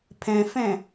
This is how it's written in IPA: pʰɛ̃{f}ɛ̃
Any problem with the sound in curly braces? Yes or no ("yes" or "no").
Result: no